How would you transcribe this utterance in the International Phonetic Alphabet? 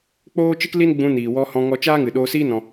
k͡p oː˦ t͡ʃ ɨ˦ k l i˦ n ɡ͡b ũ˧ n iː˨ w ɔ˧ h ɔ̃˧ ŋ ɔ˧ t͡ʃ aː˦ ŋ ɨ˨ ɗ oː˧ s iː˦ n ɔ̃˧

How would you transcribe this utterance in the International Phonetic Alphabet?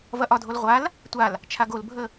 v ɐ ʔ ɒ dʱ o l ʁʷ a l | tʷ a l | t͡ʃʰ a ɡ o l bʱ ə

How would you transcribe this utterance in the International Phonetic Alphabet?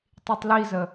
tˤ i tˤ l i z ə

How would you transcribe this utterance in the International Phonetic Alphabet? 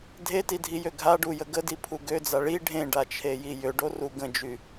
dʱ e t i dʱ i j ø ɡʱ a ɖ u j ə ɡ ə d i pʰ u ɡ ø d͡z a ɭ i ɖʱ ẽ ɖ a t͡ʃʰ e j i j ø ɖ o r u ɡ ə̃ d͡ʒ y

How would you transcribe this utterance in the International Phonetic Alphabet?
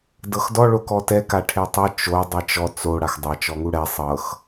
d ɤ x d ɔ ɭ o k ɔ t ɛ k a ʈʰ e tˤ ɤ t͡ʃ o dˤ e t͡ʃ ɔ t͡s o ɽ a x dˤ a t͡ʃ ɔ ŋ u ɽ ɛ sˤ ɤ x

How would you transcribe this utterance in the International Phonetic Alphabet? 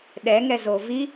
ɗ ɛ ŋ ɛ z o v i

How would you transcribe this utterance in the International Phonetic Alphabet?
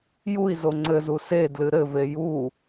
j u i̯ z o ŋ͡ǀ ɘ z u s e d l ɨ ɾ ɘ v e j u

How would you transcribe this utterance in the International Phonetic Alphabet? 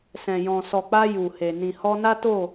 s ɛ̃˨ j ɔ̃˨ s ɔ˨ k͡p a˧ j u˨ h e˨ n ĩ˨ h ɔ˧ n a˦ t o˦˨

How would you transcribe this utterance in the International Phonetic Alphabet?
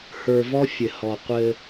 h ə˞˨ v ɔ˦ fʲ ɘ˨ h ɔ˨ qʷ ɘ˦

